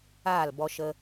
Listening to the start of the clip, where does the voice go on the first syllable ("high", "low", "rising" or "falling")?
falling